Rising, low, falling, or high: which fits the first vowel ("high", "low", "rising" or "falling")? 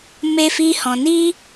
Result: high